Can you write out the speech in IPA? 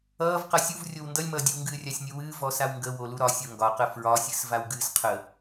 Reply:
ʌːv qʌsʲuvrʲow ndʌlʲmʌːdʲɨwŋɡɨː rʲasʲnʲuwɨː vɔsawŋɡə woluɾɒ sʲoŋɡɒqə fɹɒsʲɨs vawɡɨːsqʰə

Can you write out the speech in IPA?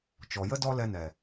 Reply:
t͡ʃɔ˨jə˦ dɔ˦lɛ˧nɛ˨

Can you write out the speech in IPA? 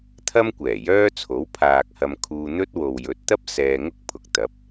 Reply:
t̪ʰɐ˥m kʷɛː˨˩jœː˥t͡sʰo˨˥w pʰaː˨k̚hɐ˧m kʰuː˧ n̪ɵ˥t̚wo˨w jɵ˨˥t̚t̪ɐ˥p̚ sɛː˧ŋʊ˥k̚pʰʊ˨k̚t̪ɐ˨˥p̚

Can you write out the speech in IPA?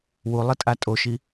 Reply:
wulˠɘtʼa tʼoʃi

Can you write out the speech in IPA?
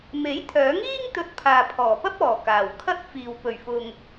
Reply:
me˨˥jt̪ʰœː˨˥ŋiː˥ŋ t̪ɵ˧t̚pʰaː˨ pʰɔː˨˩pɐ˥p̚ɔː˨˩ kaː˨˩w kʰɐ˥t̚fiː˨w pɵ˨˩ɥfʊ˨ŋ

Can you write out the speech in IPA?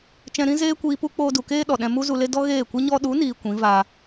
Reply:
t͡ʃɛ̃˧ɾĩ˦ zeː˦kʷiː˧pu˦k͡poː˧ du˨keː˦ ɗɔ˨ɗɛ̃˧ mu˦zu˧le˦ dɔ˦ɣeː˦˨kʷɨ˦ ɲɔ˦ ɗu˨˦niː˨ kʷĩ˨˦vaː˧

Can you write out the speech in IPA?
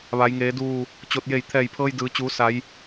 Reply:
ʋa˩˧jŋeː˩˧duː˧˩ | t͡ɕo˧˩t̚ je˧˩jt̪ʰɛː˧˩jpʰɤː˧j dɯː˩˧t͡ɕuː˩˧ sa˩˧j

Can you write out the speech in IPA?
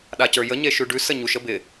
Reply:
ɗacə˞jə ɲeʃʉɖʉ səɲuʃ əbɪ

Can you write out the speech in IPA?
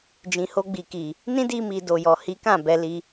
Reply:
d͡ʒĩ˨ho˧ɡ͡bi˨ki˨ | nĩ˦di˧mi˨ do˨jɔ˨hi˨˦kã˦˨ bɛ˨˦li˧

